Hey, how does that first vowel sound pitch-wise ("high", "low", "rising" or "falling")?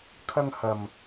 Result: high